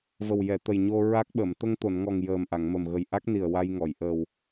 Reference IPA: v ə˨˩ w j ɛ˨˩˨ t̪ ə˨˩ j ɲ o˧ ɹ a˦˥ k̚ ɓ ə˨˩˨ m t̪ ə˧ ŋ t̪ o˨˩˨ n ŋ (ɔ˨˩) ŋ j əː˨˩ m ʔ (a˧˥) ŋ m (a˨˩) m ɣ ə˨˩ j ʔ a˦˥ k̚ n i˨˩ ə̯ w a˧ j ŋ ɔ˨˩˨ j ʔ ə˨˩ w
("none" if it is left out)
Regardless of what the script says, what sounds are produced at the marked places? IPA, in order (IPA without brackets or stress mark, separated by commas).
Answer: ɔ˨˩, a˨˩˨, ə˨˩